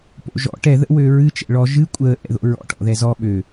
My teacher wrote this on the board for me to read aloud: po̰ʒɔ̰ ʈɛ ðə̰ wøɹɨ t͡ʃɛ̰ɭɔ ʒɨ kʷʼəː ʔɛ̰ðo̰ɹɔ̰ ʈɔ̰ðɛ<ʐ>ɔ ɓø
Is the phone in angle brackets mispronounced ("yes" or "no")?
yes